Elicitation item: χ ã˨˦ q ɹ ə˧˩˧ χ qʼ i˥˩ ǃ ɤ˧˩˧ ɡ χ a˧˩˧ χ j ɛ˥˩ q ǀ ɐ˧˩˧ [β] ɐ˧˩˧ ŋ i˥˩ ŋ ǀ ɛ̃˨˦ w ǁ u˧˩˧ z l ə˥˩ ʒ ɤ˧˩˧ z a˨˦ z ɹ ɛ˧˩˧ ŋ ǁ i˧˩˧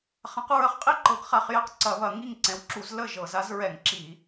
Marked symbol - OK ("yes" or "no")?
yes